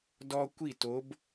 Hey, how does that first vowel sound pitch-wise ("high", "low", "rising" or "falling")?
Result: high